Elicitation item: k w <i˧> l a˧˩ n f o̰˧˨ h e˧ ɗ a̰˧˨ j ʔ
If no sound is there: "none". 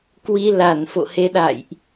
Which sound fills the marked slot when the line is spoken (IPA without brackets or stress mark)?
i˧